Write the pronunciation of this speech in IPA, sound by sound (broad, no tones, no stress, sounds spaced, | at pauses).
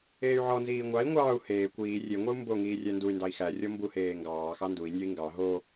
eː y̯ ʕ ɔ n z iː ŋʷ ɑ i̯ ŋʷ ɑː u̯ h eː kʷ iː rʲ e ŋʷ ɛ u̯ m b o ŋ iː rʲ æ n d u y̯ n d ɑ i̯ x æ rʲ ɔ m b u h eː ŋ ɡ ɑː x ɑ n d u i̯ nʲ ɔ i̯ ŋ ɡ ɑ ɦ o